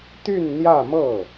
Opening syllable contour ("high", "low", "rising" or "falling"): falling